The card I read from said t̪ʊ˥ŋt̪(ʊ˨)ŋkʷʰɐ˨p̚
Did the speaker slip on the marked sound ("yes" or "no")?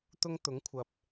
yes